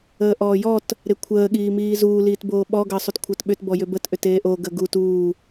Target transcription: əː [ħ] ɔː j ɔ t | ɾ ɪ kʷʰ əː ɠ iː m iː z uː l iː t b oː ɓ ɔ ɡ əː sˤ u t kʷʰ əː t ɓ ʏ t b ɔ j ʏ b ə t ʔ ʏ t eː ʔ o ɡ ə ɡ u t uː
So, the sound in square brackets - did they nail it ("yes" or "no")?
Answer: no